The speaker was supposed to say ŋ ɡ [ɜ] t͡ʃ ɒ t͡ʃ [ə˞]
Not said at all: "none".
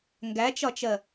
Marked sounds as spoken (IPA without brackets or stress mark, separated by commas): æ, ɜ